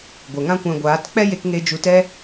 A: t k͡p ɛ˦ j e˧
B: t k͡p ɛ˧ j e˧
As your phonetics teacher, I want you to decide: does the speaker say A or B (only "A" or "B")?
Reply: A